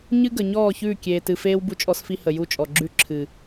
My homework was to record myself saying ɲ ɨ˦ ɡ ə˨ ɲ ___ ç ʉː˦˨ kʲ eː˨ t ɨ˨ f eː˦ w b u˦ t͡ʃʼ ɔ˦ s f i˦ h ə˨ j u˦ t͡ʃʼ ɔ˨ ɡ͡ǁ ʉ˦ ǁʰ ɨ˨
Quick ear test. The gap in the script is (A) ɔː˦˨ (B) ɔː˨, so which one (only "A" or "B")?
A